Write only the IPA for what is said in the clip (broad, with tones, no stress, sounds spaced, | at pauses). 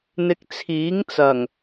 n̪ ɪ˧ k̚ t͡sʰ iː˨˥ ŋ t͡s ɐ˨˩ ŋ